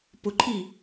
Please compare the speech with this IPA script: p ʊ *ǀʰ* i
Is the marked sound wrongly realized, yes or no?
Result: yes